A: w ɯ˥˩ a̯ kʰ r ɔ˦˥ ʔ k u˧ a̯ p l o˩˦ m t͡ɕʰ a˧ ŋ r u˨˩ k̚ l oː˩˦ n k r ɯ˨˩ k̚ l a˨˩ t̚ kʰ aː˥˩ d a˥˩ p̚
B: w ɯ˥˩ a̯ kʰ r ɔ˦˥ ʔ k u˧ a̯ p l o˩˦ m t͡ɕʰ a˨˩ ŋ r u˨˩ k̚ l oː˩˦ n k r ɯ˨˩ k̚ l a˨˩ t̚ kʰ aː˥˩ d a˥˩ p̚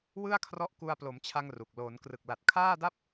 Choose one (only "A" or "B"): A